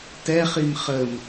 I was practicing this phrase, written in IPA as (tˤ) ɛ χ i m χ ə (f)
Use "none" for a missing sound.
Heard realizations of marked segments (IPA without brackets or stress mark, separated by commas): t, m